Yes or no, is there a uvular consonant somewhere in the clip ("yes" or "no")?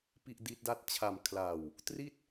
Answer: no